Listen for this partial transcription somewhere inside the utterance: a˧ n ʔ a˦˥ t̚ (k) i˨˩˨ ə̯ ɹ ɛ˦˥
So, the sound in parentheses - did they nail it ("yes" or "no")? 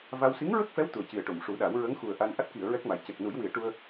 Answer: yes